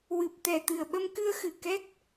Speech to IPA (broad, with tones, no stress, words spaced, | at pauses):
wɨ˨˩p̚t̪ɛ˨˩ t̪ɨ˨˩ə̯ɓə˧mkɨ˧ə̯xɨ˨˩ kɛ˦˥k̚